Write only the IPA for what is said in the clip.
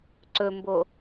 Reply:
ǀ ɵ m b o

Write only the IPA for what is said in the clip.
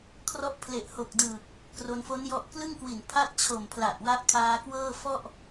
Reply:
kʰ r ɔ˦˥ ʔ pʰ l e˨˩ ʔ h o˨˩ k̚ d ɯː˨˩ k̚ | k r o˧ n f o˦˥ n j ɔ˦˥ ʔ k l ɯ˥˩ ŋ k w i˨˩ n pʰ a˥˩ t̚ t͡ɕʰ o˨˩ m pʰ l a˨˩ ʔ w a˦˥ ʔ kʰ aː˧ k w ɤː˥˩ f ɔ˥˩ ʔ

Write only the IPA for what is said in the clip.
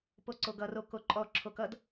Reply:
p o ǀ o ɡ ʌ r o k o ǃʼ ɔ ǁʰ o k ʌ d

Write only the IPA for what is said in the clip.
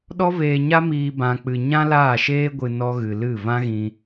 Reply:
ɗ ɔ˦ v eː˧ ɲ a˦ m iː˧ b ã˧ k͡p ɨ˧ ɲ ã˦ l aː˦˨ ʃ eː˦ ɡʷ ɨ˧ n ɔ˦ ɣ ɨ˧ l ɨ˦˨ v ã˦ ɣ ĩ˧

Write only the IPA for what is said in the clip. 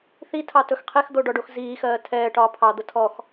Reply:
θ i tʰ ɑ t ɵ x qʰ e x d̪ o ɖ ɔ ɖ o x z iː x ɜː tʰ ɛː ʈ ɒː pʰ ɑ d̪ ə tʰ ɔ x

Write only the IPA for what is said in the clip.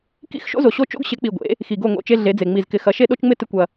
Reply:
k ḭ˦ x ʃ o̰˦ z o˨ ɕ o˦ t͡ʃ o̰˦ ɡ ɕ ɪ˨˦ k͡p i˨ ɡʷ ḛ˨˦ | x i˨ ɡ o˦˨ ŋ o̰˦˨ t͡ʃ e˦ ɮ e˨˦ d͡z e˨ ŋ͡m i˨ z k ɪ˨˦ x ɐ˨˦ ʃ e˦ ɗ o˦ t͡ʃ ŋ͡m ɪ˦ t ɪ˦ kʷ ɐ˦

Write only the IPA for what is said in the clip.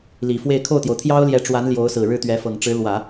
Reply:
l i˨˩ f w e˥˧ ɪ̯ kʰ o˥˩ ʊ̯ t̪ j o˩ ʊ̯ t̪ʰ j ɑ˥ ʊ̯ l j ɛ˧˥ ʈ͡ʂ w a˧˥ n l j o˧˥ ʊ̯ s ɹ̩˨˩ ɻ ɻ̩˥˩ t̪ ɥ ɛ˧˥ f ɤ˨˩ ŋ ʈ͡ʂ ɻ̩˧˥ l w ä˨˩˦

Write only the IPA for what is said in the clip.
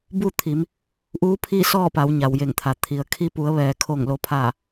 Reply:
b u˥˨ t̪ʰ i˩˧ m | ʔ uː˧˥ pʰ i˥˨ s ɔː˥˨ p a˩˧ w ɲ a˩ w j e˧˩ ŋ t̪ʰ a˩ t̪ʰ i˩ ə̯ kʰ i˧ p u˩˧ ə̯ ʋ ɛː˩ kʰ o˧˩ ŋ l o˩˧ pʰ aː˧˩

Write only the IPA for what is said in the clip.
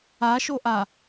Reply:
a ʃ o ʔ a

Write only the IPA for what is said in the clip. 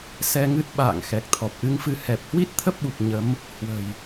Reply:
s ɛ˧ ŋ ɨ˦˥ t̚ ɓ a̰ː˧˨ ŋ x ɛ˨˩ k̚ t̪ʰ ɔ˨˩ p̚ ʔ ɨ˨˦ ŋ f ɨ˧ h ɛ˨˩ p̚ h w i˦˥ t̚ t̪ʰ ə˦˥ p̚ ɓ u˨˩ k̚ ɲ ə˨˦ m | h w ə̤˨˩ j

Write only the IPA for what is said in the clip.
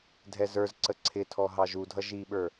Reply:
dʱ ɛ z ə˞ z ǀ ə ǀʰ ɪ tʰ ɔ ɦ ɑ ʒ u dʱ ʌ ʒ i ɓ ə˞

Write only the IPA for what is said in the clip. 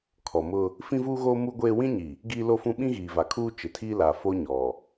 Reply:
kʰ ɔ˨ m ʊ˦ | f ĩ˦ v uː˦ ɣ oː˦ m u˦ ɡʷ eː˦ w ĩ˦ ɲ i˨ | ɡ iː˦ l o˦ f ũ˦ ɓ ĩ˦ ɣ iː˨ v a˨ kʰ uː˦ t͡ʃ ɪ˨ tʰ iː˦ l a˨ f o˦ ɲ ɔ˨

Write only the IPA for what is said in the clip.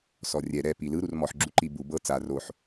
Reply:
s ɔ rʲ ɛ ɾ ɛ p i l ɯ ɾ u r m ɔ ħ ɡ͡ǁ u ǃ i b u b ɤ t͡s a r o ħ

